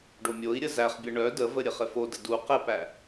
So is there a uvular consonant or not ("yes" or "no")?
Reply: yes